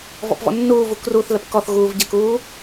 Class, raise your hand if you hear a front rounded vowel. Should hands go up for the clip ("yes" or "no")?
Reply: no